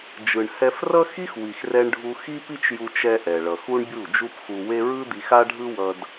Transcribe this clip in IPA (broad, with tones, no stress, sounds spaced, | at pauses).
d͡ʒ ɯ˨ ɳ h ɛ˧ f r ʌ˦ x i˦ x w i˨ x r ɛ˧ ɳ ɖʱ u˧ x i˦ p i˦ t͡ʃ j u˧ t͡ʃ ɛ˦ ʔ ɛ˨ ɭ ʌ˨ x u˦ ɳ bʲ u˦˨ d͡ʒ u˦ p x u˧ w e˦ ɹ ɯ˦ d̪ i˧ x a˦ ɖʱ ɯ˦ w ʌ˧ d